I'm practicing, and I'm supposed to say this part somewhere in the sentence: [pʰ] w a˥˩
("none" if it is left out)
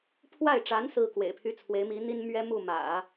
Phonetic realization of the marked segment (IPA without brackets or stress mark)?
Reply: pʰ